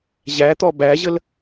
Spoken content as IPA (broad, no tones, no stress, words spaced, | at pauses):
ʑæt̪ɔ bæʑəl